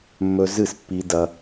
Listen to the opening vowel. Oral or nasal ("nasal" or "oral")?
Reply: oral